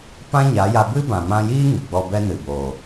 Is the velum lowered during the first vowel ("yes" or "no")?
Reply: yes